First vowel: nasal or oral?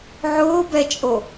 oral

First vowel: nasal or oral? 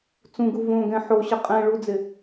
nasal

